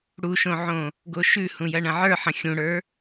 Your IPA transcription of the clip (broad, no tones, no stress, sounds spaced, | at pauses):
ɽ u ʃ õ ʕ õ | ɡ o ʃ ʉ h ũ j ɐ ɳ ɐ̃ ʕ ə˞ ħ ɐ̃ xʲ ũ ɽ ə˞